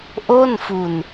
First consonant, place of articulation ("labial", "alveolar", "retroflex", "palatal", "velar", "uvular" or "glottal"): glottal